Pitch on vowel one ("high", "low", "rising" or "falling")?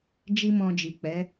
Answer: high